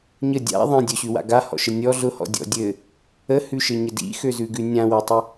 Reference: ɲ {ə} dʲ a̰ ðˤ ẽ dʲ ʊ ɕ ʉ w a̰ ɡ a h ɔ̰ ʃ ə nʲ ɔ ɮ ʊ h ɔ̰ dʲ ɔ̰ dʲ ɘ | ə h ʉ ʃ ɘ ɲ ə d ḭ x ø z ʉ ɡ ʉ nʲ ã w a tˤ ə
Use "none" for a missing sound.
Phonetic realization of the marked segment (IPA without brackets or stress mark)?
ə